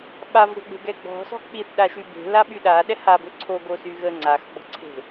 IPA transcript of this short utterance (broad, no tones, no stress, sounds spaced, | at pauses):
ɓ a v ɾʲ ɔ̤ ɡ͡b e̤ ɡ ɛ ɡ͡b ɔ̤ s ɔ̤ k͡p i θ ɗ a ʃ y b e̤ l a ɓ y ɗ a ɗ ɛ h a b ø ǀʰ o ɡ o s y ɣ ə ŋ͡ǀ a x ɡ͡b ɔ̤ ǀʰ e̤